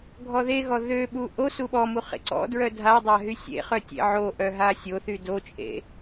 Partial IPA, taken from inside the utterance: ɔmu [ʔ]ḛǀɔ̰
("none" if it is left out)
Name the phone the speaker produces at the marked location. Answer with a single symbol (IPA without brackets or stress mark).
χ